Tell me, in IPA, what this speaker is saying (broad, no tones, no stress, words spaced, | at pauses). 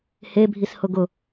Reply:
hebʱishʊ ɡʊ